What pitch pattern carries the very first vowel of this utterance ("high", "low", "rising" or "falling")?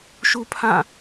high